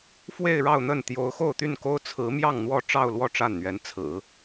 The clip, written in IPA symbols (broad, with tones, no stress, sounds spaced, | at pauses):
f w e˥˧ ɪ̯ ɻ ɑ˥˧ ʊ̯ n̪ ə˥˩ n t̪ j o˧˥ ʊ̯ x o˥˧ ʊ̯ t̪ y˥˩ n k o˥ ʊ̯ t͡sʰ ɹ̩˧˥ m j ɑ˥˧ ŋ n̪ w ɔ˥˧ ʈ͡ʂ ɑ˥˧ ʊ̯ l w ɔ˥˧ ʈ͡ʂ a˥˩ n n̪ ɥ ɛ˧˥ n t͡sʰ ɹ̩˨˩˦